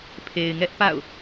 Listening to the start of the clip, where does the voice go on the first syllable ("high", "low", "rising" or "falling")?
low